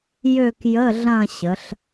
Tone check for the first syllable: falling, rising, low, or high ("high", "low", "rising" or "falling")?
falling